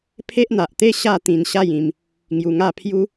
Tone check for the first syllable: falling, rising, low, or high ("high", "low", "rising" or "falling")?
high